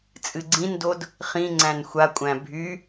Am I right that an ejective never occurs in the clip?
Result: no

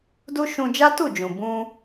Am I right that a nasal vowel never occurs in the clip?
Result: no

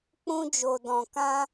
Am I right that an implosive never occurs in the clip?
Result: yes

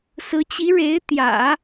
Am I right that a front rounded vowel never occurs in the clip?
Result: yes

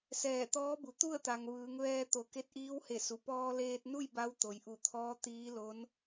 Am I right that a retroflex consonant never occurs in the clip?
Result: yes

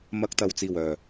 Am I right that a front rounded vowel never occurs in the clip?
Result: no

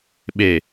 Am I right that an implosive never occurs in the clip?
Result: no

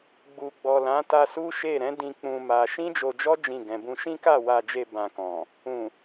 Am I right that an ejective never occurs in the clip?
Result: yes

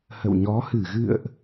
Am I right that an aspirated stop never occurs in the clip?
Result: yes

